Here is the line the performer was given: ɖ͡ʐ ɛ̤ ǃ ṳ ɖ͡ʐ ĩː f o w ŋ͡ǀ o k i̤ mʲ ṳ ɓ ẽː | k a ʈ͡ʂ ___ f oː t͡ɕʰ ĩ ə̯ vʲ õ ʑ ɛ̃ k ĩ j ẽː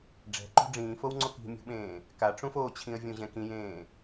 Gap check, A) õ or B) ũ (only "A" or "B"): B